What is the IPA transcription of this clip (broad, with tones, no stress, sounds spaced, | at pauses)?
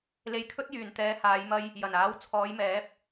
l e˧ j kʰ ɵ˥ t̚ j yː˨ n t̪ ɛː˨˧ h aː˨˧ j m ɐ˧ j | j ɐ˨˩ n aː˨˥ w t͡sʰ ɔː˨˧ j m ɛː˨˥ p̚